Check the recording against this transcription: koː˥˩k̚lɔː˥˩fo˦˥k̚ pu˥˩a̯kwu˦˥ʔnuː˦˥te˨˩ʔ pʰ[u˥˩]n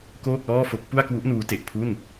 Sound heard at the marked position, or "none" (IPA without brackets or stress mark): u˥˩